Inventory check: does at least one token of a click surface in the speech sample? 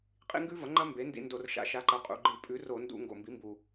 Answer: yes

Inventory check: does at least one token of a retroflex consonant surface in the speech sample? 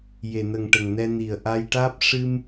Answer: yes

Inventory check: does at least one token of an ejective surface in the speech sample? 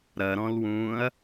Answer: no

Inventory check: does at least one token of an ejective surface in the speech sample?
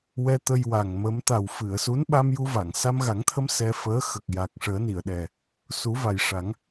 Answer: no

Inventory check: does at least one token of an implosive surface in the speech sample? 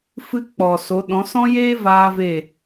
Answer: yes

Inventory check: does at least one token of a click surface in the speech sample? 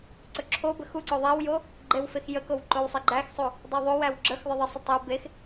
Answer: yes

